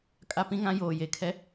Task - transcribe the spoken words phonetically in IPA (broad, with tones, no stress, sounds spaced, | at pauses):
kʼ a˦ p ĩ˦ ŋ ã˦ j oː˨ j e˨˦ kʰ ɛ˦